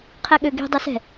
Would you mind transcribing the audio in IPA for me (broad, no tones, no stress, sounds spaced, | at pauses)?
qʰ ɛ ɠ ø ɡ i̤ dˤ ɛ s ɛ̤